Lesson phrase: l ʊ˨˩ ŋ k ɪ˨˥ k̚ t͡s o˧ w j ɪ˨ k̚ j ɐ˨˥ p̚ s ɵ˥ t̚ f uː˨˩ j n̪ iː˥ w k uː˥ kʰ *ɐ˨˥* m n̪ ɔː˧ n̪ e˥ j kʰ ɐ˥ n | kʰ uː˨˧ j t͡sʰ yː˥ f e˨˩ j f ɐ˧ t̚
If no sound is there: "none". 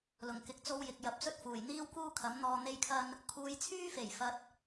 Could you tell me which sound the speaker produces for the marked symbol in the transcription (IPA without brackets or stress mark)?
ɐ˨˥